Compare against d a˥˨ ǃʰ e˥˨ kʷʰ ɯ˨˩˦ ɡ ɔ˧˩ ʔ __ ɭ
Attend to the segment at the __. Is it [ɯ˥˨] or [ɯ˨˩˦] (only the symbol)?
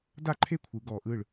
ɯ˥˨